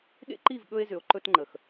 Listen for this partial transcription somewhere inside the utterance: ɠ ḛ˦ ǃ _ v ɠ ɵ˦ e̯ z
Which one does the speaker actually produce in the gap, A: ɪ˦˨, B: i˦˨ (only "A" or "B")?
B